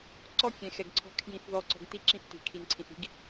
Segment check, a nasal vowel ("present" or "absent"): present